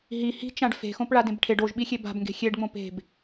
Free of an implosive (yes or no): no